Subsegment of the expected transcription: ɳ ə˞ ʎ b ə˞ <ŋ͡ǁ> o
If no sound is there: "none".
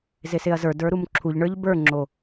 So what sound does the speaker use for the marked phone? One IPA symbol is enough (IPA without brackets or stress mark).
ŋ͡ǁ